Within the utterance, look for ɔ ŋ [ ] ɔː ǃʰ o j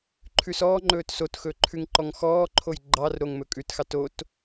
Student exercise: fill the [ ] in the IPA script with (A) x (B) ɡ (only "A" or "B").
A